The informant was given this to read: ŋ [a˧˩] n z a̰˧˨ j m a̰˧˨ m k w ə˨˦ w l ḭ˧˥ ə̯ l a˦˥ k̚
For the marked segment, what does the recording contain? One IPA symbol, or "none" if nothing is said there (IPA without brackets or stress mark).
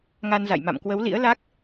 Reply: a˧